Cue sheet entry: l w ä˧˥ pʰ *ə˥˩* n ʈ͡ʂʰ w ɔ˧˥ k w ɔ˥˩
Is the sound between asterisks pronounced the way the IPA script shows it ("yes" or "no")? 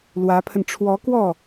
no